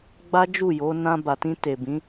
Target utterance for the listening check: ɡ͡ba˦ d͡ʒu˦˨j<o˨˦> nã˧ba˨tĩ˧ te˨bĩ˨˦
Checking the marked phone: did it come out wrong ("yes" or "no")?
no